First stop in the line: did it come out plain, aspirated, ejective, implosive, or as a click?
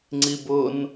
click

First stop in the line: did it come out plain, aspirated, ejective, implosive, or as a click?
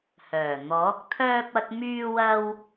plain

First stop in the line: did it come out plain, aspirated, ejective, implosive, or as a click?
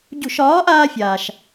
plain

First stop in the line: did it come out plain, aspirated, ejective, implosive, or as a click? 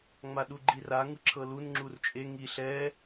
implosive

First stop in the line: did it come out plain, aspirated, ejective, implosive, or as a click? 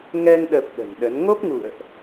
implosive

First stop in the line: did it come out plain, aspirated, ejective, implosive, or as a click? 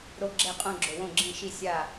click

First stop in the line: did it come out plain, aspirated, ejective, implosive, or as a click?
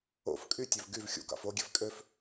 ejective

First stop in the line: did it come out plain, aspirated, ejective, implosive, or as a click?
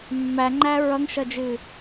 click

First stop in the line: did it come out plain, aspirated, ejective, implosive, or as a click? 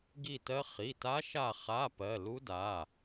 plain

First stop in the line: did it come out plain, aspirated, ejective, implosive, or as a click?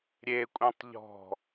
ejective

